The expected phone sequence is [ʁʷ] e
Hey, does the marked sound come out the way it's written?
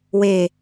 no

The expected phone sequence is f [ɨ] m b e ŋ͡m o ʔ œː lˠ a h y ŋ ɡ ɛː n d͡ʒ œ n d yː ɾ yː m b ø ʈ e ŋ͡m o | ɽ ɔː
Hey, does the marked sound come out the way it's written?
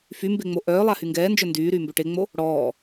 no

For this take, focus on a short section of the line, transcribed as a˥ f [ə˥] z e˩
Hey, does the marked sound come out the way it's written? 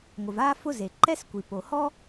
no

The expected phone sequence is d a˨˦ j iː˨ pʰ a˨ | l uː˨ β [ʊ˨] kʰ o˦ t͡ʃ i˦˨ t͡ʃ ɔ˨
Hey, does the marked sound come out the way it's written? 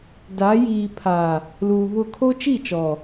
no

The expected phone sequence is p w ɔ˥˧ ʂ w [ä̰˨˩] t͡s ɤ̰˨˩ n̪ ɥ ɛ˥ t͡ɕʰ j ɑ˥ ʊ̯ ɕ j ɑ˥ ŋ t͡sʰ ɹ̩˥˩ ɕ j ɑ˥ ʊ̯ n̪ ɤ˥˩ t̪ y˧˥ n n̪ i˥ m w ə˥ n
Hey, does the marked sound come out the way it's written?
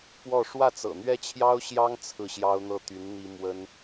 no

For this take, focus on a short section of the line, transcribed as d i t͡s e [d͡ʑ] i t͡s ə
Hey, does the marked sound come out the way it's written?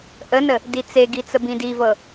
no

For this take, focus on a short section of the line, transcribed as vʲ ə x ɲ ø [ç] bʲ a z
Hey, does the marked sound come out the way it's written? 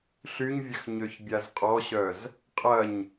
yes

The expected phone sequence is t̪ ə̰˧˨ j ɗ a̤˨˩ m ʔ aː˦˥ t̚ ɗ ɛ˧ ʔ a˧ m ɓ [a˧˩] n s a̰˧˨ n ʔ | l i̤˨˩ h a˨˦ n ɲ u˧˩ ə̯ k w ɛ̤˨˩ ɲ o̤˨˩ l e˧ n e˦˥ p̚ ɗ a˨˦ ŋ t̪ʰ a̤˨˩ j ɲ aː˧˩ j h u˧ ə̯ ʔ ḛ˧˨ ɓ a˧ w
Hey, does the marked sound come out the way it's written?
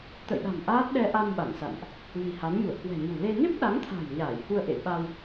yes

